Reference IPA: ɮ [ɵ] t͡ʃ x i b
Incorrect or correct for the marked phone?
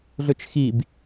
correct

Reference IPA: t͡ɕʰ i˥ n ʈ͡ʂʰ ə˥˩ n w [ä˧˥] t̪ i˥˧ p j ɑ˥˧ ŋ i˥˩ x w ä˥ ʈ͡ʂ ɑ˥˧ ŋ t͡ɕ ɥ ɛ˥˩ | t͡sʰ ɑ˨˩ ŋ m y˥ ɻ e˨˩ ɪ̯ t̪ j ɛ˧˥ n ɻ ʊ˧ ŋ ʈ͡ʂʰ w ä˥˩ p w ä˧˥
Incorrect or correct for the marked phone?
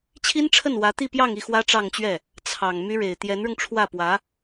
correct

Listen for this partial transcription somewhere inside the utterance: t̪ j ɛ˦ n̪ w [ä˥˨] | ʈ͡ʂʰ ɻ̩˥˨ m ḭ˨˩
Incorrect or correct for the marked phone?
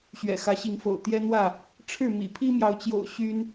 correct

